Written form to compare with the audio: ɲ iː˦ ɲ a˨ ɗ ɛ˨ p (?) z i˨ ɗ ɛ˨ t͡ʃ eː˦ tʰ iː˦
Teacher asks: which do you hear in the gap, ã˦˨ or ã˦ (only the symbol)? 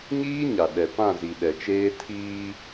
ã˦˨